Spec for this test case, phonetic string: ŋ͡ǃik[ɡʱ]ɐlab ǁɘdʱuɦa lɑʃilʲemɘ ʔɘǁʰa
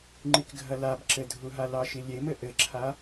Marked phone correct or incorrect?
correct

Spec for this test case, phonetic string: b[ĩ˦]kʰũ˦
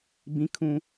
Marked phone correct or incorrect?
correct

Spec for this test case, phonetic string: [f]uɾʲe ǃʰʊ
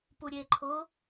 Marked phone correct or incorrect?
incorrect: p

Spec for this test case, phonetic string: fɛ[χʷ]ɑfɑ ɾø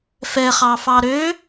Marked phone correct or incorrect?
incorrect: χ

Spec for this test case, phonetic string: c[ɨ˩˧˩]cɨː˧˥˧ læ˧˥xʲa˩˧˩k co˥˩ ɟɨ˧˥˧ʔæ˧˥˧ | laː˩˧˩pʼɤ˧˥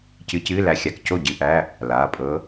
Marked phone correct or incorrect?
incorrect: ɨ˧˥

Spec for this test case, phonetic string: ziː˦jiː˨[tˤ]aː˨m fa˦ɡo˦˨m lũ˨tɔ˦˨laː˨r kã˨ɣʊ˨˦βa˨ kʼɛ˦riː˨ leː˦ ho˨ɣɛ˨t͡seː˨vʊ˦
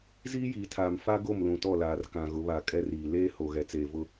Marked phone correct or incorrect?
incorrect: tʰ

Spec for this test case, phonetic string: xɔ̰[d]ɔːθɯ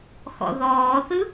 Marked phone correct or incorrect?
incorrect: ð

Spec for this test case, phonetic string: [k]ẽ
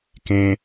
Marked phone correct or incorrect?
correct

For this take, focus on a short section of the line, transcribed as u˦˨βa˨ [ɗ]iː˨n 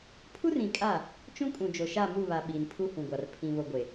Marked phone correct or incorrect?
incorrect: ɓ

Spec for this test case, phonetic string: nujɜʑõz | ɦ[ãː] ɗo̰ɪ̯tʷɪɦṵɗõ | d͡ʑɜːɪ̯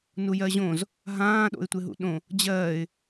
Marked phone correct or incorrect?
correct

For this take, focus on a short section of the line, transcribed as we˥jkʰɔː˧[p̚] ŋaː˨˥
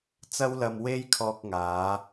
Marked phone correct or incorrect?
incorrect: k̚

